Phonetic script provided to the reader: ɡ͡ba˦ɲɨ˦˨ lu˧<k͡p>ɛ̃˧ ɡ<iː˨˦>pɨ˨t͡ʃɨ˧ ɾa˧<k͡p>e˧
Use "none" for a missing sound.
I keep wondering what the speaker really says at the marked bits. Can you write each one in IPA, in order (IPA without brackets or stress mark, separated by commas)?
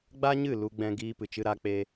ɡ͡b, iː˧, k͡p